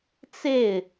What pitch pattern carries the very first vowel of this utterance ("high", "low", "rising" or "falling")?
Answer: falling